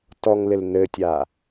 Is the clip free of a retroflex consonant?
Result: yes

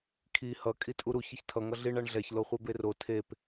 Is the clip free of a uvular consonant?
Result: no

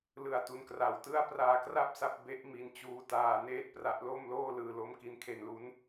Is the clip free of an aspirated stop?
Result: no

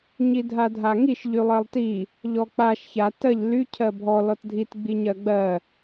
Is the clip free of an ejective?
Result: yes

